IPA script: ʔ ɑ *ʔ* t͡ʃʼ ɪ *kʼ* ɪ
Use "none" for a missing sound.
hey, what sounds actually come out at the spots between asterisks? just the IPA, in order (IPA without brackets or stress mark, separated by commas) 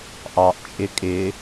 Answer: ʔ, kʼ